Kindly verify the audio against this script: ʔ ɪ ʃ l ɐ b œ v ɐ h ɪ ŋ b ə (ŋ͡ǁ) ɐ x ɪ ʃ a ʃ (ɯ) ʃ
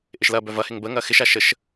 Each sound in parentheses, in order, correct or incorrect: incorrect, incorrect

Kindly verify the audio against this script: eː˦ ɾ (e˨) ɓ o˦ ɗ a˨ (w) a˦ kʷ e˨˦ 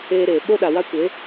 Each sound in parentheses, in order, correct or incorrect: incorrect, correct

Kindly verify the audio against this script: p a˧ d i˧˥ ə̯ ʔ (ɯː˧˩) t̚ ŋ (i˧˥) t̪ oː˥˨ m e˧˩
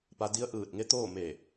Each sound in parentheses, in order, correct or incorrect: correct, incorrect

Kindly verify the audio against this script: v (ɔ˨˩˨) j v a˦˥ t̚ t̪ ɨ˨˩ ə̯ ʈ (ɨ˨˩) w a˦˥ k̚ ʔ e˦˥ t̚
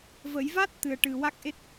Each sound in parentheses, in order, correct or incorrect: incorrect, correct

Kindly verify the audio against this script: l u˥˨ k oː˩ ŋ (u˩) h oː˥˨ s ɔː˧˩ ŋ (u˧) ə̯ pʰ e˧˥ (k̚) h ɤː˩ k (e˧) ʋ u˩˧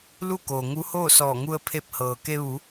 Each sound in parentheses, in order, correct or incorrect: incorrect, correct, incorrect, correct

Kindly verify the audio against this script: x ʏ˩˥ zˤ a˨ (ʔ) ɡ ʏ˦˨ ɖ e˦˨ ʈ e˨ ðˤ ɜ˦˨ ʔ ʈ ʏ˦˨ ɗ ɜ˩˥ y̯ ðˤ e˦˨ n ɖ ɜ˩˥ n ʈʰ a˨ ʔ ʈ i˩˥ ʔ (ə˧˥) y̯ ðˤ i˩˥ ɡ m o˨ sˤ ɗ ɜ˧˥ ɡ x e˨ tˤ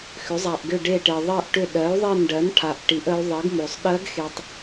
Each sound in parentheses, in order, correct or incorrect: correct, correct

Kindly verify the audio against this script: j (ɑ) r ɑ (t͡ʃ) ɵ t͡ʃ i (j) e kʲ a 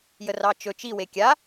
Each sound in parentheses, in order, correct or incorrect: incorrect, correct, incorrect

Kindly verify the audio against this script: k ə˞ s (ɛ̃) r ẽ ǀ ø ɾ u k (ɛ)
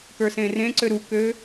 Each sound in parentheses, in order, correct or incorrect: incorrect, incorrect

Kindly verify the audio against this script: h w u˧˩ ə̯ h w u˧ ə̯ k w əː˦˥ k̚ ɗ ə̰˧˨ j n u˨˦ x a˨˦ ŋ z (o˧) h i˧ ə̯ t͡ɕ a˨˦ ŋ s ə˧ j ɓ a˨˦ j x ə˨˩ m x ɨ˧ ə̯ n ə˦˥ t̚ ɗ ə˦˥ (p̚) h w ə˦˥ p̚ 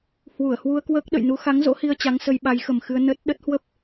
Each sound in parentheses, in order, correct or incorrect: incorrect, incorrect

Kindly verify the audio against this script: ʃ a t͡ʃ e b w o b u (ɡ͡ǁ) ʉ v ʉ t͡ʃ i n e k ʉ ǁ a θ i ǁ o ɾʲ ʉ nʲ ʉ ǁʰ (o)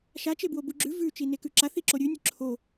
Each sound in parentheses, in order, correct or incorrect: correct, correct

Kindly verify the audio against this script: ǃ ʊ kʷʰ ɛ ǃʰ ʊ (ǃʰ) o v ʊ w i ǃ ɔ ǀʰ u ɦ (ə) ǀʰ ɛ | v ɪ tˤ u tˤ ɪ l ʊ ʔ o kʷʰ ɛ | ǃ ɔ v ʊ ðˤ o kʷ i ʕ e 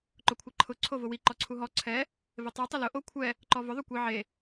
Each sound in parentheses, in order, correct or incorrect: incorrect, incorrect

